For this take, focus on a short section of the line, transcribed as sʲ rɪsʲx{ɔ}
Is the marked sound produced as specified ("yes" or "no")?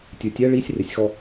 yes